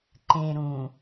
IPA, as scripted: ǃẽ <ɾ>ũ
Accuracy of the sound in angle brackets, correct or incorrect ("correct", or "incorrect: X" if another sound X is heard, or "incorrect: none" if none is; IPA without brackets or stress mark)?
correct